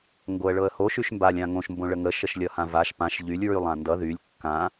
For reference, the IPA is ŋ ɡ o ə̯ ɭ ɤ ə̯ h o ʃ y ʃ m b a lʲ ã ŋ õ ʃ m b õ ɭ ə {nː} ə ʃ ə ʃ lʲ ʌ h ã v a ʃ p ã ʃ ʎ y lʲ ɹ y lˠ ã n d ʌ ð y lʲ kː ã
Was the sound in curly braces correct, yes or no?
no